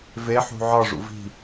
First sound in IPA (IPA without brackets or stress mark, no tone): v